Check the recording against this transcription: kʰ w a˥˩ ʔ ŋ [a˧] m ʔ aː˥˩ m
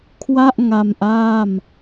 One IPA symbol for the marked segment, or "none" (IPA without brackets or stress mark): a˧